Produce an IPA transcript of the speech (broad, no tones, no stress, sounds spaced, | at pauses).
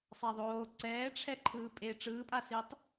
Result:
sˤ a ðˤ oː ǀ ɛː ʈ͡ʂʰ ɛ ǃʰ ɯː pʼ e ʈ͡ʂ ɯː pʼ a s i tˤ